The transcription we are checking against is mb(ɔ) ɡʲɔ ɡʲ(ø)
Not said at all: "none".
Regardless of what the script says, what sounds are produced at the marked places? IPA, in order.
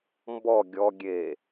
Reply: ɔ, e

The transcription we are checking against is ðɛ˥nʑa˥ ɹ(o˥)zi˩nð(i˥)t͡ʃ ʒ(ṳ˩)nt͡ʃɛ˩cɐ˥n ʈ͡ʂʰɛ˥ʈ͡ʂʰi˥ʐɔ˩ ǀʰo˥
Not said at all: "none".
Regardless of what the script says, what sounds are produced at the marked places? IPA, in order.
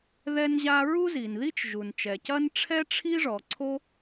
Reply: u˥, i˥, u˩

